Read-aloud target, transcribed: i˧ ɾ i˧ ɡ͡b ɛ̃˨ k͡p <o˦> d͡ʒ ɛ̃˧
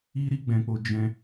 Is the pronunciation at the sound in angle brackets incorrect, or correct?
incorrect: o˨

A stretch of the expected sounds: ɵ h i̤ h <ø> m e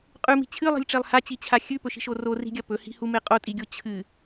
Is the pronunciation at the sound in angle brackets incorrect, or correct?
incorrect: u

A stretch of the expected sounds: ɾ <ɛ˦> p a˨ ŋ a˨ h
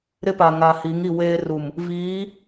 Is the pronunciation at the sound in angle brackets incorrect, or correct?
incorrect: ɪ˦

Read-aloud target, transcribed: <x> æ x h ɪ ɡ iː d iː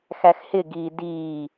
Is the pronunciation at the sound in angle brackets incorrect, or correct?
correct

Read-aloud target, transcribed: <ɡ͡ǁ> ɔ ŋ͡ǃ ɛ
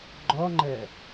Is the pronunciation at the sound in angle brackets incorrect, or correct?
incorrect: ɡ͡ǃ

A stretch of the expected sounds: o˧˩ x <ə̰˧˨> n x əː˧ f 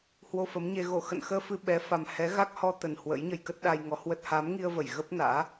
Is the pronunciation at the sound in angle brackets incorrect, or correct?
correct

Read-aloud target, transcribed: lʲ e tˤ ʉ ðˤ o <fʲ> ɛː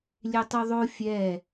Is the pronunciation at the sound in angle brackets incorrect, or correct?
correct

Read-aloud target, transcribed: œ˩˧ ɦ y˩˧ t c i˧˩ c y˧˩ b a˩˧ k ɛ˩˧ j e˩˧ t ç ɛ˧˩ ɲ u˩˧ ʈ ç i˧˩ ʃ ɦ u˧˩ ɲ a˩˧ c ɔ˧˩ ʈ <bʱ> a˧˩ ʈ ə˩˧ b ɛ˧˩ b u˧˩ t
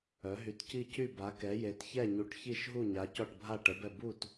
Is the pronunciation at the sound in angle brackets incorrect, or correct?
correct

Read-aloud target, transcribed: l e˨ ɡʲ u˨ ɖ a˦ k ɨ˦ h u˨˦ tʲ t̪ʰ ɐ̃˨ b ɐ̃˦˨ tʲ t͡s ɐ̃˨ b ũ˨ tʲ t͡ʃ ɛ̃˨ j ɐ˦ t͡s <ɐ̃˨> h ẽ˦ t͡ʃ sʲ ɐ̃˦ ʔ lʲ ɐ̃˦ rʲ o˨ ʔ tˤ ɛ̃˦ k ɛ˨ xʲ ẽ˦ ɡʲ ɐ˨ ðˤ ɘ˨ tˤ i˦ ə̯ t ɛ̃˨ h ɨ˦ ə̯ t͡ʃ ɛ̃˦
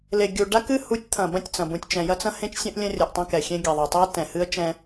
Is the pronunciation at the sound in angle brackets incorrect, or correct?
incorrect: ɐ̃˦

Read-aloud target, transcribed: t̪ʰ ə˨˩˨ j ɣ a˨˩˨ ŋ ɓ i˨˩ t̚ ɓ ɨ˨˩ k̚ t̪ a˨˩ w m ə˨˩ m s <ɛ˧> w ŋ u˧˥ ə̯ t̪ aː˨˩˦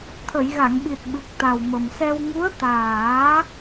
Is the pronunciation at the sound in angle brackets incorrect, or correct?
correct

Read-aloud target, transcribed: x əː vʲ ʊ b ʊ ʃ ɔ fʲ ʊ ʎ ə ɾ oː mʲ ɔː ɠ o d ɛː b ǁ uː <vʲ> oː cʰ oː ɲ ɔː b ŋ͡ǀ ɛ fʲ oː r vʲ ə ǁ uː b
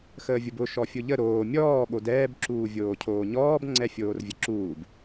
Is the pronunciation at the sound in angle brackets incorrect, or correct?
correct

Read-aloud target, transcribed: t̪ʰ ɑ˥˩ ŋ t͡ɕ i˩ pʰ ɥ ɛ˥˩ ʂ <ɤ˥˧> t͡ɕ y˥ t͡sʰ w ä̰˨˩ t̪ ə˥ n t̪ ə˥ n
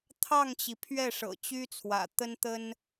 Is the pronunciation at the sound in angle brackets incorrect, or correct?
incorrect: ɤ̰˨˩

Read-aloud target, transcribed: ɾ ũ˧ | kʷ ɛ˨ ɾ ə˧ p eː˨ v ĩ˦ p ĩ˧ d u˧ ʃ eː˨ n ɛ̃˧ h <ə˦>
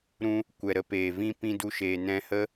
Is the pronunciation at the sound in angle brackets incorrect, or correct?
correct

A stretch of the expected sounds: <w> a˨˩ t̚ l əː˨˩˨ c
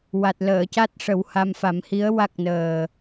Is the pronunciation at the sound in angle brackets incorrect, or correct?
correct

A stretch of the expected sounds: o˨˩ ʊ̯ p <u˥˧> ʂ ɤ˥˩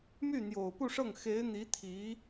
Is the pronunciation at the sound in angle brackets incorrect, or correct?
correct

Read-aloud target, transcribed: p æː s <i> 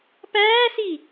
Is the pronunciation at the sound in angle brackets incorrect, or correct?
correct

